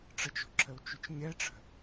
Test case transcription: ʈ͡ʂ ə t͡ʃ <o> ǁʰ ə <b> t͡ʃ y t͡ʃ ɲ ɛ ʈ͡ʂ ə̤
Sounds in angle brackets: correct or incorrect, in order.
incorrect: o̤, incorrect: w

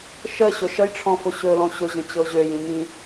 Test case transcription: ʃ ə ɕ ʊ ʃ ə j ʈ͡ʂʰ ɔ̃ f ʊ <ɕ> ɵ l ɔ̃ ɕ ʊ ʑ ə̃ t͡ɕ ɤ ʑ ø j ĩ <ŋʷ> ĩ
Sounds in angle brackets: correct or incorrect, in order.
correct, incorrect: ŋ

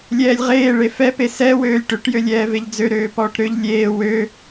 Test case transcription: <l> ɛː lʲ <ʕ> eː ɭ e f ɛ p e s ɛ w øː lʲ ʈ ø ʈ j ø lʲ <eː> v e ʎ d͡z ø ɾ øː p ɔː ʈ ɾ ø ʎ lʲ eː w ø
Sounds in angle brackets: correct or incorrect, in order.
incorrect: lʲ, incorrect: ʁ, incorrect: ɛː

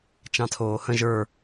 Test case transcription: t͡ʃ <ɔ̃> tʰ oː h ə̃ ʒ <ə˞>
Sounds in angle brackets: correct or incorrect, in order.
incorrect: ɑ̃, correct

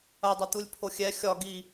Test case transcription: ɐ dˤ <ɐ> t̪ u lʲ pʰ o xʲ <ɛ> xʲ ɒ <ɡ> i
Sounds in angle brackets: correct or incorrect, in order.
correct, correct, correct

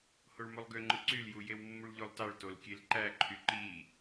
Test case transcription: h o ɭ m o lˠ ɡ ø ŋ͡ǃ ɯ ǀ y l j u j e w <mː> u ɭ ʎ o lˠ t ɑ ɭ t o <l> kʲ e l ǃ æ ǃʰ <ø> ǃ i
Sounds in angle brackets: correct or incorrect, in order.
correct, correct, incorrect: y

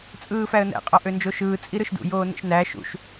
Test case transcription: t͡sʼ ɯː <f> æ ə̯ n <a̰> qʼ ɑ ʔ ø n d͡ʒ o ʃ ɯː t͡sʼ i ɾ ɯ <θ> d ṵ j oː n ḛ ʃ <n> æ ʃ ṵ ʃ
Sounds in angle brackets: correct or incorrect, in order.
correct, incorrect: æ̰, incorrect: ʃ, correct

